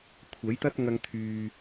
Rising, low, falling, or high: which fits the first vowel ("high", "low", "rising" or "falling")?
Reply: rising